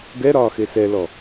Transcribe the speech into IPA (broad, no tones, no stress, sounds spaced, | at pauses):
ɡ ɛ ɾ ɒː x e s ɛ l ɔ